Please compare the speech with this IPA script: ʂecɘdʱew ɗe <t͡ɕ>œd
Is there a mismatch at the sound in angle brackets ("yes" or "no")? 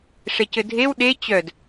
no